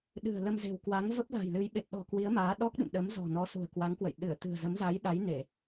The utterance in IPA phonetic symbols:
ɗ ɨ̤˨˩ ə̯ l ə˧ m z e̤˨˩ w k w a˨˦ ŋ v ə˦˥ p̚ l a̤˨˩ j l ɨ˨˦ j ɓ e˨˩ t̚ ɗ ɔ̤˨˩ k w i˨˦ ə̯ m aː˨˦ ɗ ɔ˦˥ k̚ ɗ ɨ̰˧˨ m ɗ ə˨˦ m z ɔ̤˨˩ n ɔ˨˦ s ṳ˨˩ ə̯ k w a˨˦ ŋ k w ə̰˧˨ j ɗ ɨ˧˩ ə̯ t̪ ɨ̤˨˩ ə̯ z ə˨˦ m z a˨˦ j ɗ a˨˦ j n e˧˩˨

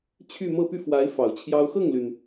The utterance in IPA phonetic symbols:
t͡ɕʰ y˥˧ m ɤ˥˧ p y˥˩ f w a˧˥ ɪ̯ f ɑ˨˩ ʊ̯ t͡ɕʰ j ɑ˥ ʊ̯ x ɤ˥˩ ŋ l y˩ n

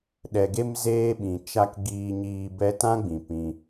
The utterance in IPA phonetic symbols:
ɗ ɛ˨ ɡ e˧ m z eː˦ ɓ ĩ˨ t͡ʃ a˦ k ɡ iː˧ ɲ iː˧ b ɛ˧ t ã˦ ɡ͡b ĩ˨ p ĩ˧

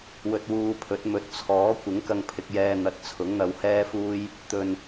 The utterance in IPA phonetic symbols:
w ɵ˧ t̚ w uː˧ pʰ ɵ˨˥ t̚ m ɵ˨˥ t̚ t͡sʰ ɔː˨˥ kʷ ɪ˨˥ ŋ k ɐ˧ ŋ pʰ ɪ˧ k̚ j ɛː˧ n̪ ɐ˨ t̚ t͡sʰ ʊ˨˥ ŋ n̪ ɐ˧ w h ɛː˥ f uː˥ j | t̪ ɵ˨ n

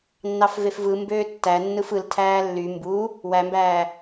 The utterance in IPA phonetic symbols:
nː ɑ f v e f v ɯ m b øː tː æ nː ɯ f ɯ l tʰ æː lː y m b u | w æ m b æː

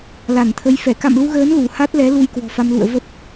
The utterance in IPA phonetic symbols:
l a˧˩ n t̪ʰ ə˨˦ j f ɛ˧˩ k a̰˧˨ m l u˧ ɣ əː˨˦ n l u˧˩ h a˦˥ t̚ l ɛ˨˦ l u˧ j k w ɔ̤˨˩ f a˧ m l ṵ˧˨ ə̯ v ə˦˥ p̚

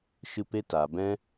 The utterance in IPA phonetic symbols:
ʃ ɨ˧ p e˧ t a˨ b ɛ̃˧

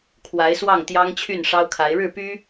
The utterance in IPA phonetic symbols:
kʰ w a˧˥ ɪ̯ s w ɑ˥˩ ŋ t̪ j ɑ˥ ŋ t͡ɕʰ y˥˩ n ʂ ɑ˥ ʊ̯ kʰ a˧˥ ɪ̯ ɻ ɻ̩˥˩ p y˥

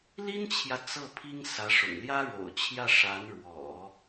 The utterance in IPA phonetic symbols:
l i˥ n t͡ɕʰ j ä˨ t͡s ɤ˥˩ pʰ i˥ ŋ s ä˧˥ ʂ ʊ̰˨˩ ŋ l j ä˥ ɻ o̰˨˩ ʊ̯ t͡ɕʰ j ä˥˩ ʂ a˧˥ n ɻ w ɔ̰˨˩˦

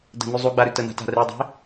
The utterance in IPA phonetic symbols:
d ə̤ n ʉ zˤ u ɡ͡b a ɾ ʉ t ə n a̤ t a̤ r e dˤ e̤

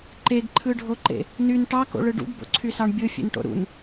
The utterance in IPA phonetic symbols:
ǃ e ɡ ǃʰ ɯ ɖʱ o ǃ ḛ | n y n ʈ ɑ k o̰ ɭ ɯ ɖ ṵ ɡ b o̰ ǀʰ y s ɑ ɳ bʲ ɯ fʲ ḛ n ʈ o̰ ɾ ṵ n

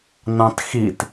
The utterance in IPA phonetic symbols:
n ɑ̃ t x i t

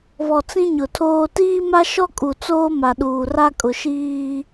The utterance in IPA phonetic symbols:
β ɔ˨ t͡s ĩ˦ ɲ ʊ˨ tʰ oː˦ t iː˦ m a˦ ʃ ɔ˦ kʼ u˨ t͡s oː˦ m a˨ ɗ uː˨ r a˦ kʼ ʊ˨ ʃ iː˦

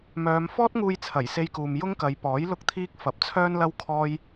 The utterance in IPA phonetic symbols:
m œː˨˧ m f ɔː˥ t̚ ŋ uː˧ j t͡sʰ ɐ˨˩ j s e˧ j k uː˨ m j ʊ˥ ŋ k ɐ˨˧ j p ɔː˨˥ j l ʊ˥ k̚ t̪ʰ iː˥ k̚ f ɐ˨˥ p̚ t͡sʰ œː˥ n l ɐ˥ w kʰ ɔː˥ j

